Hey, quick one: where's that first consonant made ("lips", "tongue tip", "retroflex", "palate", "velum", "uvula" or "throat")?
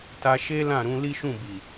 tongue tip